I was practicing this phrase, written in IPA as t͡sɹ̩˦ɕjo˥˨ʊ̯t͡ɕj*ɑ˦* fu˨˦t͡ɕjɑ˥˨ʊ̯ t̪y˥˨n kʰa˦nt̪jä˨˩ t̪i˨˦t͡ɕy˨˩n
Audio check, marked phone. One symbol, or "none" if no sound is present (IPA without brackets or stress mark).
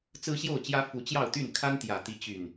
ä˦